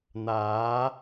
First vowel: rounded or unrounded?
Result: unrounded